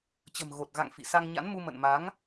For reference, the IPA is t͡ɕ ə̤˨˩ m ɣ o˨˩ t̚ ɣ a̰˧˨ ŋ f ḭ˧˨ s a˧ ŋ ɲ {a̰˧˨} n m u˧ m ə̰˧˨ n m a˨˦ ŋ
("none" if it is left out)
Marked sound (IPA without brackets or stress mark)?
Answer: a̰˧˥